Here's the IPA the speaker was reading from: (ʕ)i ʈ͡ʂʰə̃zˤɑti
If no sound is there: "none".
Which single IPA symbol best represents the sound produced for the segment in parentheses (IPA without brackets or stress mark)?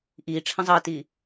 ʔ